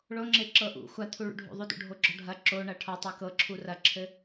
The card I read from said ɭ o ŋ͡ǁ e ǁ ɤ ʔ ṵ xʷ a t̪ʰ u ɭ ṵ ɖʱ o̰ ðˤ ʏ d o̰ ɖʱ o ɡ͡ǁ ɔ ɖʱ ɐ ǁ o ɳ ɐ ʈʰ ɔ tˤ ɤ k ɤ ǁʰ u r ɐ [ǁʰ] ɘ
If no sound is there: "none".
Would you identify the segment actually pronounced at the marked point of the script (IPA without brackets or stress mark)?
ǁʰ